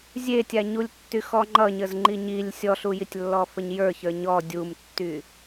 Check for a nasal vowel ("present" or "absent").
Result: absent